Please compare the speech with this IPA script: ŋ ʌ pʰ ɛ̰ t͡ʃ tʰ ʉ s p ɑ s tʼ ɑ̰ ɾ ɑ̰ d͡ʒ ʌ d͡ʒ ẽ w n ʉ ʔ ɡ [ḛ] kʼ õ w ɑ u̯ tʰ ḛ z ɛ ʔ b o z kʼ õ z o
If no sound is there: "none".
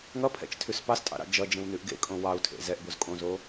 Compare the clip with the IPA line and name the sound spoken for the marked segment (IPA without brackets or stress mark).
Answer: ḛ